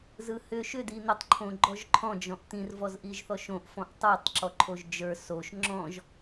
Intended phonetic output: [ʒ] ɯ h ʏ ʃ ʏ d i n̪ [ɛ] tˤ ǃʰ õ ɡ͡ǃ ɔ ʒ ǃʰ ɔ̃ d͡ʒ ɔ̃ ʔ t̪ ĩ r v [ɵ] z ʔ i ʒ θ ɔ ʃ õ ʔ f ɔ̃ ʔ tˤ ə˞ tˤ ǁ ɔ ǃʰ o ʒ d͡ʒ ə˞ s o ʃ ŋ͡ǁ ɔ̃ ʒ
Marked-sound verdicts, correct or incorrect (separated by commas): incorrect, incorrect, incorrect